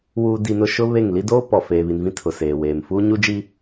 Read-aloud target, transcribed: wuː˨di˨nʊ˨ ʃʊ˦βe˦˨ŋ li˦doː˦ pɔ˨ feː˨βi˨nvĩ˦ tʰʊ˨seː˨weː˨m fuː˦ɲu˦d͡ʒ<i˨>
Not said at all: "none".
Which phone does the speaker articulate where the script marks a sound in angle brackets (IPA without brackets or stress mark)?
i˦